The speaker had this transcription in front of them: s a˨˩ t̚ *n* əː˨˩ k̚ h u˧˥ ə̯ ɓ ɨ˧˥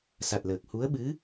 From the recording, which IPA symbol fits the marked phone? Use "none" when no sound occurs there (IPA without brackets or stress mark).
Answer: l